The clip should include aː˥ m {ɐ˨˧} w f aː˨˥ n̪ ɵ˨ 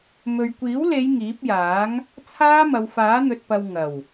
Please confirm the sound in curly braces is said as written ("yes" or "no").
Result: yes